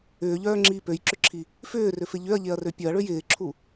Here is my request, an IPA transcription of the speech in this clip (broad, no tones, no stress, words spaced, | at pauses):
ʏːʎœːŋ͡ǁiː pøjǁʏǁʰi | fʏːrʏfɪ ʎʏɐ̯ʎeɐ̯rø pʲœɐ̯ɭøj ɪːǁʰu